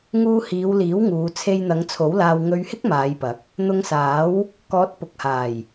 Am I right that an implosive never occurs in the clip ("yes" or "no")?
yes